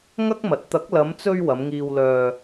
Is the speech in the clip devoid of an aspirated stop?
yes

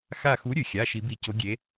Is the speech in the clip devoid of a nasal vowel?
yes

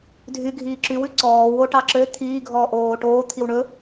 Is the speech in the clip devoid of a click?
no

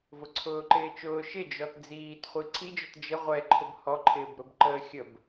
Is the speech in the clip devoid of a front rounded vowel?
yes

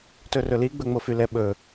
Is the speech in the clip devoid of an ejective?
yes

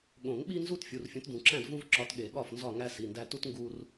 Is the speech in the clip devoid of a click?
no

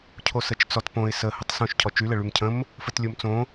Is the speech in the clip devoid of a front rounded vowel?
no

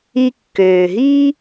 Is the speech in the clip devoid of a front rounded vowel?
no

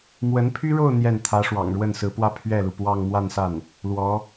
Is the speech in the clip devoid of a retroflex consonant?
no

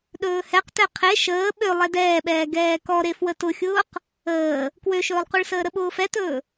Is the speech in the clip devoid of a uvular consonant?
no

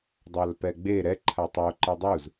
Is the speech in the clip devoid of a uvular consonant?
yes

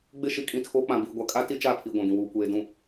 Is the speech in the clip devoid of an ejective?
no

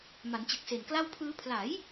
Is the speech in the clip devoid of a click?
yes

